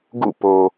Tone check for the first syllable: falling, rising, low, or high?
falling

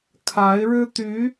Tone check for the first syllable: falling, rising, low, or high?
rising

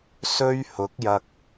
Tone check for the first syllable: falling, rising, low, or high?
high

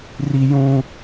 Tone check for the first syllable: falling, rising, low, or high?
high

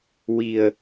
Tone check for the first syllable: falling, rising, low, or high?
low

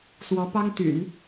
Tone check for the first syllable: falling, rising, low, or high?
rising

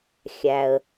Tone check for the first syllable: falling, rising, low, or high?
low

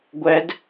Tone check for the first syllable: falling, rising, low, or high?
rising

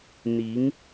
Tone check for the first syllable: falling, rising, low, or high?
rising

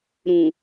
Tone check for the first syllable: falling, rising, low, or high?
low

